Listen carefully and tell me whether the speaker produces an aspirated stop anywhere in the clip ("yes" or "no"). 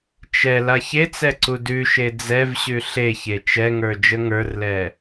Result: no